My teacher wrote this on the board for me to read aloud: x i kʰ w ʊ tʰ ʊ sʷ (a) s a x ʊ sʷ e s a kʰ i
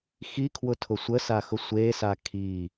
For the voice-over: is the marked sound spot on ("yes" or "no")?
no